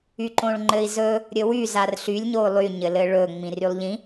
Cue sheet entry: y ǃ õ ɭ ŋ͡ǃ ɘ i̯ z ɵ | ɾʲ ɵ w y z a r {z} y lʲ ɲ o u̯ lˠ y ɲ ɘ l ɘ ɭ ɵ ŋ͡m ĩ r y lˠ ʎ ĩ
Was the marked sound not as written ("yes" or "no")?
yes